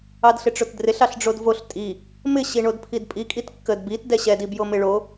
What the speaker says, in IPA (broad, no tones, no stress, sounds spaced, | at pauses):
ɑ d ɬ ɪ ʈ͡ʂ o t d r ɪ ɬ ɑ ɬ ɖ͡ʐ o d v o ɬ tʼ i | m ɪ ɕ i ɳ o d pʰ i d pʼ i kʼ i t kː ə d b i t d ɛ ɕ ɛ d i b j o m ɪ ɭ o